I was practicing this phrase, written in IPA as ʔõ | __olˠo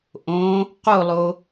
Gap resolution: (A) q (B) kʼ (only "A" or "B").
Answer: A